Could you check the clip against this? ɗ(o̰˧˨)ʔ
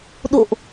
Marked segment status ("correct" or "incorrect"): correct